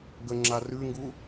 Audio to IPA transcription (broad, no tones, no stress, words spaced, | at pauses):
ɡəŋ͡ǁa rʉŋɡu